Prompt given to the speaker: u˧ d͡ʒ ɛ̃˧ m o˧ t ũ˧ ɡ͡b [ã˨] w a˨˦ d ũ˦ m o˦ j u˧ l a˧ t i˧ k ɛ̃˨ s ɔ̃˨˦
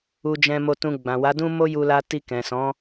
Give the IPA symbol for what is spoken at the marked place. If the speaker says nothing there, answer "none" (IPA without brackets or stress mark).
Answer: ã˨